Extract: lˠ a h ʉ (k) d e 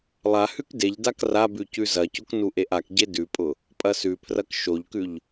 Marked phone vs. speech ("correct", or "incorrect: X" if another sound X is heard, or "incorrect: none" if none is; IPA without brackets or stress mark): correct